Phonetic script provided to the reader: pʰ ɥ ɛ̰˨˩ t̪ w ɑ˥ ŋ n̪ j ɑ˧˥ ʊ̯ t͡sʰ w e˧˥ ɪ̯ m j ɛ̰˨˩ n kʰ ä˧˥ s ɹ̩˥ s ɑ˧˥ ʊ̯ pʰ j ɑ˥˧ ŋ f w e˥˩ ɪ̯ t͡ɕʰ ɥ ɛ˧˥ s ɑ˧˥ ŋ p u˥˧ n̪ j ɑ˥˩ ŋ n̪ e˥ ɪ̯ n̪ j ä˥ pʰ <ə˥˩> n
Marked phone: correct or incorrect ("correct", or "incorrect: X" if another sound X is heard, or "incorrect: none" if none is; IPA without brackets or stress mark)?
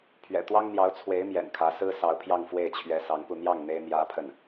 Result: correct